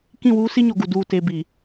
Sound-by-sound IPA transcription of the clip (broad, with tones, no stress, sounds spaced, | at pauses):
k ĩ˦˨ w uː˦ s i˦ ɲ o˨ ɡ u˨ d uː˨ t e˨ b i˨